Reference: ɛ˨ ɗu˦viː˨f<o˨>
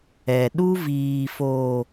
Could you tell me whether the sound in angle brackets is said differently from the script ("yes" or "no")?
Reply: no